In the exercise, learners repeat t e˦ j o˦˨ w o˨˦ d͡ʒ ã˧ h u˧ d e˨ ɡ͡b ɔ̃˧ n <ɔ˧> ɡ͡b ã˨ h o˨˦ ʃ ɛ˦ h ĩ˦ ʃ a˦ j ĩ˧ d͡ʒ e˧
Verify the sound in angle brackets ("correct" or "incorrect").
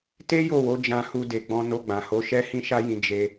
incorrect